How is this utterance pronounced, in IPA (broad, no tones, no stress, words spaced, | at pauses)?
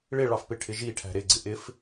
ɭɪɭɑfpɪʈʰɪ ʒiʈʰæ̤ ɾɪɡ͡ǀɪ ʔɪf